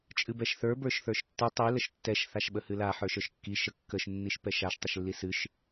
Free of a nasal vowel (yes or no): yes